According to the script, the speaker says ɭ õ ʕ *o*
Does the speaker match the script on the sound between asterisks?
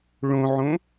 no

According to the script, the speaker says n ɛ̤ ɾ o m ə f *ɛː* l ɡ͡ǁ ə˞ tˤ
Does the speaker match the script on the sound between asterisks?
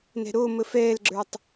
yes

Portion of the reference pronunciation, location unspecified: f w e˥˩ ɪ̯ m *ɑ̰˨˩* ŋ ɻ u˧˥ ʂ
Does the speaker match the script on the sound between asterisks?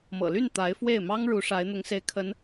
no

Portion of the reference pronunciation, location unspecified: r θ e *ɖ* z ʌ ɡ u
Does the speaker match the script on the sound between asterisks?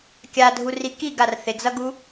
no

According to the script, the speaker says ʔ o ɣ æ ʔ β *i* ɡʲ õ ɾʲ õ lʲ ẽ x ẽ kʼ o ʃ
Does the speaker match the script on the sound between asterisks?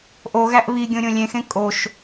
yes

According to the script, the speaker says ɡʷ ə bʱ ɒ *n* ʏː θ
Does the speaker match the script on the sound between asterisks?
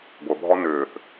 yes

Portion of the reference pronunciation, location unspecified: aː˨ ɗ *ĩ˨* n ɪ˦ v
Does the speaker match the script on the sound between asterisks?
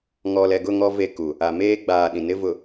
yes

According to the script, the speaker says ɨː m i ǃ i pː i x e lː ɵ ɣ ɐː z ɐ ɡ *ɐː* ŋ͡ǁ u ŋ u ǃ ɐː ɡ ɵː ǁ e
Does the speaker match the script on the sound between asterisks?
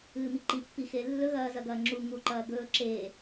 yes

